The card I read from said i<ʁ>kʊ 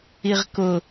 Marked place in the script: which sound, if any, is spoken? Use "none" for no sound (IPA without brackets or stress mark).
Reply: ʁ